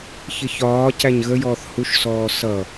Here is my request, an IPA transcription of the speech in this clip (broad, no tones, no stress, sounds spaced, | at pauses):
ç ɪ ç ɒː c æ ɲ ɣ ə j ɔː θ h u ʃ s ɔː s ʌ